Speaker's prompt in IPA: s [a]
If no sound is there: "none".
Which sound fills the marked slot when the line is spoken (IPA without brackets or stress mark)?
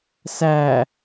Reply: æ